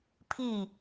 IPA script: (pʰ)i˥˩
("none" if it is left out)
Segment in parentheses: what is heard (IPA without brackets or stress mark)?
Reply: pʰ